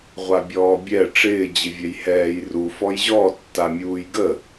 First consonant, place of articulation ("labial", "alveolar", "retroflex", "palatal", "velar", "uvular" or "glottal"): uvular